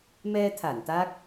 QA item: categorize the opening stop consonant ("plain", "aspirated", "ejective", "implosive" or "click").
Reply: aspirated